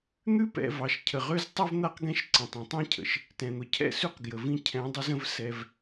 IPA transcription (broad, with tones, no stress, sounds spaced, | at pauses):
n̪ ʉ˦ p ɛ̰˨ v ɑ˨ ʃ cʰ ə˨ ʁ ø˦ z tˤ ʉ˦ v n̪ a˦ q ɡ ɛ̃˦ ʃ ǀ ə̃˨ tˤ ĩ˨ tˤ ĩ˦ cʰ ə̰˨ ʃ | t ɛ̃˨ n̪ ʊ˨ cʰ ɛ̰˦˨ s ʉ˦ q ɡ j ə˨ v ĩ˦ cʰ ɛ̃˨˦ dˤ ʊ˦ z ə̃˦ v s ɛ˦ v